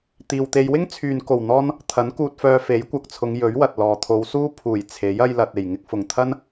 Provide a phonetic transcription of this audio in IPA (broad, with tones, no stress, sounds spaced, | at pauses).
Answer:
t̪ iː˨ w t̪ e˧ j w ɪ˥ ŋ t͡sʰ yː˨ n k o˨˩ w n̪ ɔː˥ n | t̪ʰ ɐ˨˥ n k uː˧ t̚ f œː˧ f e˨˥ j kʷ ɐ˨ k̚ t͡sʰ ʊ˨˧ ŋ j ɵ˨˥ ɥ w ɐ˨ t̚ l ɔː˨ t̪ʰ o˨˧ w s uː˥ pʰ uː˨˩ j t͡sʰ e˨˥ j ɐ˧ j l ɐ˨ t̚ e˨˩ j ŋ ɪ˧ k̚ f ʊ˨˩ ŋ t̪ʰ ɐ˥ n